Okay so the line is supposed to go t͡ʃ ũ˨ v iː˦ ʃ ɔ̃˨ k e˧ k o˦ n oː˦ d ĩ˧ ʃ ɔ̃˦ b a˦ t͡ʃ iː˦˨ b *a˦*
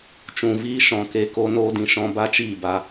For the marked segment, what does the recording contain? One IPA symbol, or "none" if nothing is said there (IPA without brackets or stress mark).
a˧